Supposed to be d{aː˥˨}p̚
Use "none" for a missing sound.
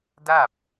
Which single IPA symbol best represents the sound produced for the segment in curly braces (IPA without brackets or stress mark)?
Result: aː˥˨